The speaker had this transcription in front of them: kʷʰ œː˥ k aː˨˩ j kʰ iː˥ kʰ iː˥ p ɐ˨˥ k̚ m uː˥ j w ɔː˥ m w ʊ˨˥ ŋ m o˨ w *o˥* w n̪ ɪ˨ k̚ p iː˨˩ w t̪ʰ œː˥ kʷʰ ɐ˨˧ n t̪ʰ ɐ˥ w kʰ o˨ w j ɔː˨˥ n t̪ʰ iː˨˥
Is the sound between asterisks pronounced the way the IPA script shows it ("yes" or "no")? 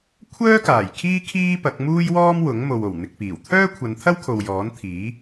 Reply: no